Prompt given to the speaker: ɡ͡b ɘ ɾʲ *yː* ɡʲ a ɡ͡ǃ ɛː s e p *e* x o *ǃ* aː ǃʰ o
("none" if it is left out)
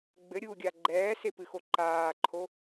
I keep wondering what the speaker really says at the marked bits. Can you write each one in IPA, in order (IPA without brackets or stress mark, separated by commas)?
uː, ɨ, ǃ